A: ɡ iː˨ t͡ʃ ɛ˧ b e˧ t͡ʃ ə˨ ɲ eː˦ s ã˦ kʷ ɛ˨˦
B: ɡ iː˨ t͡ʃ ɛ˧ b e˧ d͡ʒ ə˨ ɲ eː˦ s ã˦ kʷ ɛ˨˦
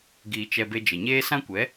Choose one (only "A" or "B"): B